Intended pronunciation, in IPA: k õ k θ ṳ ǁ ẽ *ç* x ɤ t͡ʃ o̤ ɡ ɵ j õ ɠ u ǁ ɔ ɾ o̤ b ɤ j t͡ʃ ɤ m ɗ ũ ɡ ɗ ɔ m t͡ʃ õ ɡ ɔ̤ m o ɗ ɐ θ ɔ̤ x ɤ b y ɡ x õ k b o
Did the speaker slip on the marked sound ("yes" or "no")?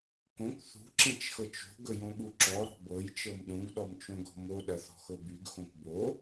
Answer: yes